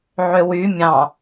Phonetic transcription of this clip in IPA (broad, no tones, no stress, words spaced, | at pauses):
ʕøwy mʲɑ̃